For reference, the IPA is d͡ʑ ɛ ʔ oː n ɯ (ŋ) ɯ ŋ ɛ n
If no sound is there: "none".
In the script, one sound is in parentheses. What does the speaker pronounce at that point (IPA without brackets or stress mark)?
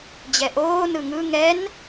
ŋ